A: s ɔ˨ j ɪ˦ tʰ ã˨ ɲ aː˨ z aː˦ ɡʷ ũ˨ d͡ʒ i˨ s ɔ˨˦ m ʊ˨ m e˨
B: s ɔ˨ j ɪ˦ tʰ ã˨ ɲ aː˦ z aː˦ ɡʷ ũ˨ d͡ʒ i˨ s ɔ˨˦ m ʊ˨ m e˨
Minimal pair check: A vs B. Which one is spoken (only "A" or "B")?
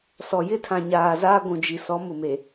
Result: A